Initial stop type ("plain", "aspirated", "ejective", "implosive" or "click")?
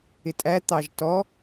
ejective